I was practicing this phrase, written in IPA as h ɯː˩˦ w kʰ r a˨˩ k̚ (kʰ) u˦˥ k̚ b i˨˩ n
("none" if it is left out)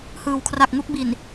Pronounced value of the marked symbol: ŋ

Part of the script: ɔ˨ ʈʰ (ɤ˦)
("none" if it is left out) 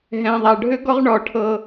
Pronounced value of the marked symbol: ɤ˦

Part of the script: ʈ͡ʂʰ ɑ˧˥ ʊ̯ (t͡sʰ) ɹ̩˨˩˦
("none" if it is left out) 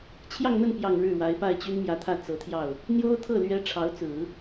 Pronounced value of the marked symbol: t͡s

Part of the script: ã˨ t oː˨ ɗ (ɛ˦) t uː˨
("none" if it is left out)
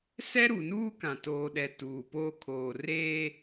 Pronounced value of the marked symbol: ɛ˨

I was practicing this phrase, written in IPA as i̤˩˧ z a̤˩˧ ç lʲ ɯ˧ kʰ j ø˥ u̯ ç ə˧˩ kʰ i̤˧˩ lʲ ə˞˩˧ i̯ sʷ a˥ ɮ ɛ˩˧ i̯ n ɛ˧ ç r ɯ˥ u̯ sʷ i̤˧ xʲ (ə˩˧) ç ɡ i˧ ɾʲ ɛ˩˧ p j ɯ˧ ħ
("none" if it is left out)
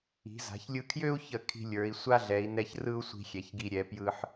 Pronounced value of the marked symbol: ɛ˩˧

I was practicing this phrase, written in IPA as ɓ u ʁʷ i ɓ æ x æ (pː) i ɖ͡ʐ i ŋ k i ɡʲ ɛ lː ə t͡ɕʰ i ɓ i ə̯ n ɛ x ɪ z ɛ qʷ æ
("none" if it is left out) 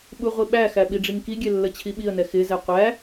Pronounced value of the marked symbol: ɓ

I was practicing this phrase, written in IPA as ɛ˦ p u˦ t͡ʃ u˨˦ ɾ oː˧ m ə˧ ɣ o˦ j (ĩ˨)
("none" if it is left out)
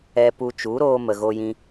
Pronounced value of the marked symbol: ĩ˦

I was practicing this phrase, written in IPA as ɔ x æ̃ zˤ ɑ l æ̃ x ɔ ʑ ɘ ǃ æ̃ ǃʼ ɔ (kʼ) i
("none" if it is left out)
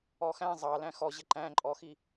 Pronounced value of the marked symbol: x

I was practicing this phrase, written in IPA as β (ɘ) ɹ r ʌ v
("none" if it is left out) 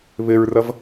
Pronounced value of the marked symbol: ɘ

